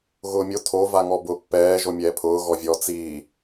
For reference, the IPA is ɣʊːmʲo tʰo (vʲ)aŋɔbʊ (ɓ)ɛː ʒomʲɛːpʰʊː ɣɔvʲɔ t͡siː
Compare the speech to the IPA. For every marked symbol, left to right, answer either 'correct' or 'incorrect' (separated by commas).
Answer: incorrect, incorrect